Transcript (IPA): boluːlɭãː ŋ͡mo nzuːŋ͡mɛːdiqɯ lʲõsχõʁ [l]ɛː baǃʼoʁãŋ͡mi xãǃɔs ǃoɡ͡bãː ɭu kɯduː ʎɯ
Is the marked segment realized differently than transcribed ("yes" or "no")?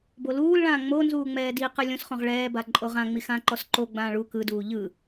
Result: yes